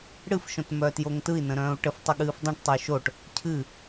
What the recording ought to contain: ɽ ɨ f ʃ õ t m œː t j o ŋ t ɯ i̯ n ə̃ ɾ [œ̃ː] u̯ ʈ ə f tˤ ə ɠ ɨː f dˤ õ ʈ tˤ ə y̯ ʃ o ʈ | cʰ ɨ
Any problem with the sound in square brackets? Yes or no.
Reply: no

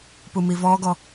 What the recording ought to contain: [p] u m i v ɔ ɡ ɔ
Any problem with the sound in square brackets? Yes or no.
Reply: no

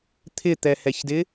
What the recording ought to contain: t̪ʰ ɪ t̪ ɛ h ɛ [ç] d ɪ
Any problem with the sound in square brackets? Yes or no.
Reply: no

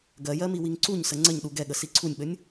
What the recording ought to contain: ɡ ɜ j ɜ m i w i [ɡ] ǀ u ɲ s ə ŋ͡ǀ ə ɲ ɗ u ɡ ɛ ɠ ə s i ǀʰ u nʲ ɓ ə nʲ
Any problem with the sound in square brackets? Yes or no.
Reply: yes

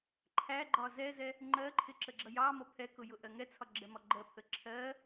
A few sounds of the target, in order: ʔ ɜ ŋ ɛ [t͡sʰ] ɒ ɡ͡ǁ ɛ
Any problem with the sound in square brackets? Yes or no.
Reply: no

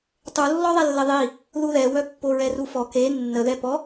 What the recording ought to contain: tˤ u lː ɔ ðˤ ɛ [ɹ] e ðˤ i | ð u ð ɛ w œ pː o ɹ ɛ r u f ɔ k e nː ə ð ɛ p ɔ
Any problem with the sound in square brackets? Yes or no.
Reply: yes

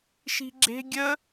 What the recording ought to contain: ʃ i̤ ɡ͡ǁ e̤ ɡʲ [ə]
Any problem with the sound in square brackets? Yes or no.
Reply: no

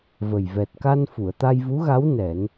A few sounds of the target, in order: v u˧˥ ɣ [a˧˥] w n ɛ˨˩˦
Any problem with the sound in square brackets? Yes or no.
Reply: no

